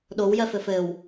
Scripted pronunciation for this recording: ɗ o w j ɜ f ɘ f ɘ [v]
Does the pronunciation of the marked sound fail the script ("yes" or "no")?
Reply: yes